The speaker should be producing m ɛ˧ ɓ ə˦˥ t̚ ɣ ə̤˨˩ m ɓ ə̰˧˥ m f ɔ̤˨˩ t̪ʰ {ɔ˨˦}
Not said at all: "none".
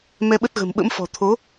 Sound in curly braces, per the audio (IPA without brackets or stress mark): o˨˦